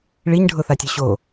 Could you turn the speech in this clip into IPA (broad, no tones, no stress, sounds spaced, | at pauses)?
ɭ i ɲ ɖʱ ʊ θ a tʲ œ ɕ o